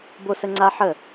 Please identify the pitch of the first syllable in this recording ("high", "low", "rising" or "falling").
high